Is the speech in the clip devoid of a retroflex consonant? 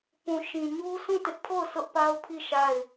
yes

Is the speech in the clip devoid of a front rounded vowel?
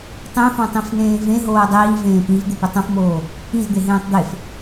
yes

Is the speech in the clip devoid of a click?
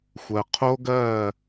yes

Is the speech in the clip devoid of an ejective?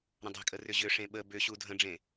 no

